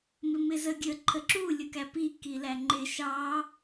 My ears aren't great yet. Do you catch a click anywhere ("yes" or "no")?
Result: yes